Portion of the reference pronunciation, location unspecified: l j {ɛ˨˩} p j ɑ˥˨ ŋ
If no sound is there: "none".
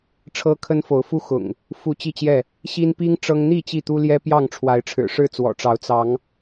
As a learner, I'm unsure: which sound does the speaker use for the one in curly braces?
ɛ˦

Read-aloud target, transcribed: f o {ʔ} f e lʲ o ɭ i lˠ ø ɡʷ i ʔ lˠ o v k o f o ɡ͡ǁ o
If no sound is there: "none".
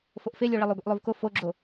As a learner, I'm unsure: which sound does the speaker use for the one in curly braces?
ʔ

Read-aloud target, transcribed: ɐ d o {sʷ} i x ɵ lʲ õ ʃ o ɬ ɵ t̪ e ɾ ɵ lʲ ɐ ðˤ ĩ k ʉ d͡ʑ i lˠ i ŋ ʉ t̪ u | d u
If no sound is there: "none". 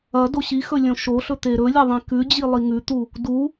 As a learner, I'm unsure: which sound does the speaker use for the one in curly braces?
ɕ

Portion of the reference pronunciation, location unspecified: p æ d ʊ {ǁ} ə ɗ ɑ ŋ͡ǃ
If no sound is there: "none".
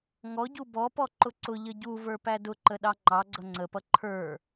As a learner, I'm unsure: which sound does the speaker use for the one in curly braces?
ǃ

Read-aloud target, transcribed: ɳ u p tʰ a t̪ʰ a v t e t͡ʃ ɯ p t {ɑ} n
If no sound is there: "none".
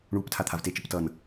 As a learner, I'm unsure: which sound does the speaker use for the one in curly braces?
ʌ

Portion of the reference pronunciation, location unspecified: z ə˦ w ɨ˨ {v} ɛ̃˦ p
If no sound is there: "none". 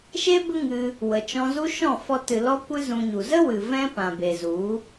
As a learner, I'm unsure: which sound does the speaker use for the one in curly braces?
v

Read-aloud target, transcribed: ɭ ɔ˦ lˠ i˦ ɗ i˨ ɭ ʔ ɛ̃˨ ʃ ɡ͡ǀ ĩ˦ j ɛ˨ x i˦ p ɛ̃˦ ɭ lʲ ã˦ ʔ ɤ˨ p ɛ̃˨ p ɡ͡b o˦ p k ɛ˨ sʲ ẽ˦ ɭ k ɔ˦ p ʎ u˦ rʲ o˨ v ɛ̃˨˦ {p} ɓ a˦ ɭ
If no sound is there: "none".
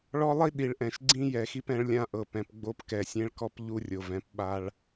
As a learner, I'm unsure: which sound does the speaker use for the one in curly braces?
p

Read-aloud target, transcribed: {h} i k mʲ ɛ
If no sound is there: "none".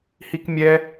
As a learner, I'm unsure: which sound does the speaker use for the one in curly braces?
h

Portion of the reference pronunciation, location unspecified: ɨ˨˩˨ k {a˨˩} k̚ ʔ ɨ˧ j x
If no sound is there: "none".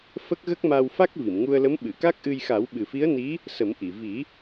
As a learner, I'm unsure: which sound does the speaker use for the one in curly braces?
a˦˥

